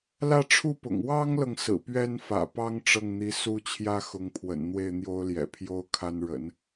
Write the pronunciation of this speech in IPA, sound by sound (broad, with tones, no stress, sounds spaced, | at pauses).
l ä˥˧ ʈ͡ʂʰ u˥˩ p ʊ̰˨˩ ŋ w ɑ˥ ŋ l ɤ˨ ŋ s ɹ̩˨˩ p ɥ ɛ˥ n f ä̰˨˩ p ɑ˥ ŋ ʈ͡ʂ ɤ˥˩ ŋ n̪ i˧˥ s u˥ t͡ɕʰ j ä˥ x ʊ˧˥ ŋ pʰ w ə̰˨˩ n n̪ w e˥˩ ɪ̯ n̪ j o˥ ʊ̯ l j ɛ̰˨˩ pʰ j o˥ ʊ̯ kʰ a˥ n ɻ ə̰˨˩˦ n